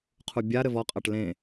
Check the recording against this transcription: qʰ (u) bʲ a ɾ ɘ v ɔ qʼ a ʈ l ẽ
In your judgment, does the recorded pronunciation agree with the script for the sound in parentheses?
yes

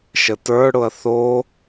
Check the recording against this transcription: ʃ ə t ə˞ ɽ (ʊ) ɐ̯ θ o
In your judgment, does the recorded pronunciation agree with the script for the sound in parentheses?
yes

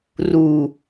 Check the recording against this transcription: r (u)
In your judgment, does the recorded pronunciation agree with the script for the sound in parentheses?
yes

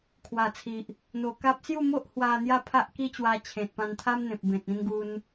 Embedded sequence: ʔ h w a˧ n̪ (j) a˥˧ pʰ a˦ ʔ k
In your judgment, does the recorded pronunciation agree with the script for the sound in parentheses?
yes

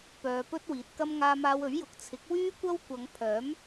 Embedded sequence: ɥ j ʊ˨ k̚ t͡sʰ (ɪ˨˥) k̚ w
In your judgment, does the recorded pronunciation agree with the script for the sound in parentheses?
yes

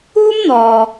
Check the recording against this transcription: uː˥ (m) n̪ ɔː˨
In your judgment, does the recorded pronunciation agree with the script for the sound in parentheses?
yes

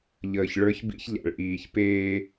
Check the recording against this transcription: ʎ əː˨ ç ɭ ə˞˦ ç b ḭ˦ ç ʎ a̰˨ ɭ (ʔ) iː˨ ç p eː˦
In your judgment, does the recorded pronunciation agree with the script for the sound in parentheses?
yes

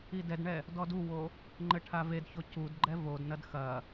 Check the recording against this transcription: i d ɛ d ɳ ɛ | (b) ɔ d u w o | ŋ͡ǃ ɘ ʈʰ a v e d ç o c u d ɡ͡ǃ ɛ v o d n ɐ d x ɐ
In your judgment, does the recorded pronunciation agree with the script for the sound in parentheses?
no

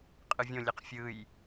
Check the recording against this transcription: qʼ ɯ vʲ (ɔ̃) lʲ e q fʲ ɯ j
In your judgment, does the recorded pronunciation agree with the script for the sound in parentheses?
no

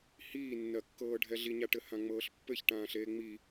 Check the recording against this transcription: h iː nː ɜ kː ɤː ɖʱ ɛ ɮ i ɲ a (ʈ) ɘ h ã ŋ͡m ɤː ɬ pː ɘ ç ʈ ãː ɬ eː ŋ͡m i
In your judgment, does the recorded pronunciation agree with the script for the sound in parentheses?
yes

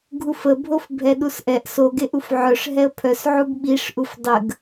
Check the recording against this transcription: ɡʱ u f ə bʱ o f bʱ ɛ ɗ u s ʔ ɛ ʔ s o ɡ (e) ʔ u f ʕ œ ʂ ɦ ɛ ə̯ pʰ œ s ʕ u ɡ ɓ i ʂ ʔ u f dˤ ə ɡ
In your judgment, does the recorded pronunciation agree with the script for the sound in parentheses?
yes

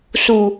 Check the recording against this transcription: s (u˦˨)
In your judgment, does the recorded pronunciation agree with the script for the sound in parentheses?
no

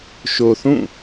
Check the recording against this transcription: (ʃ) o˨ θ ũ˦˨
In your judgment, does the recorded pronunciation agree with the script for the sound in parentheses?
yes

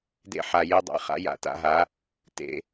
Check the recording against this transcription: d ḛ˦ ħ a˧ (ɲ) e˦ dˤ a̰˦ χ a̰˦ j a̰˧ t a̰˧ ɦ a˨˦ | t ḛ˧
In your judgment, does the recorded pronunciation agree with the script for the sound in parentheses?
no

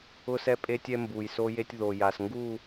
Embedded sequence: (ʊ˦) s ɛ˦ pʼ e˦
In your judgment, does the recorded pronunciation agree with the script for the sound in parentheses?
yes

